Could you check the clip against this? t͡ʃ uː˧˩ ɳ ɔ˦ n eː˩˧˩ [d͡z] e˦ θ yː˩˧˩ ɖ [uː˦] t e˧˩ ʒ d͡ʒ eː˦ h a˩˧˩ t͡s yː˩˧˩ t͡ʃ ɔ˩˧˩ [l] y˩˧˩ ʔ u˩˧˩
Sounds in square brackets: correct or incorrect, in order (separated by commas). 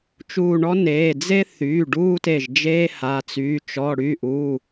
correct, correct, incorrect